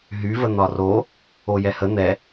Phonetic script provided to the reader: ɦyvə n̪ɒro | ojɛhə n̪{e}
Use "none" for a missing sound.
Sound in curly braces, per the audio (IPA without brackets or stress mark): ɛ